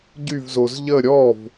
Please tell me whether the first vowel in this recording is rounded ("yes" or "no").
yes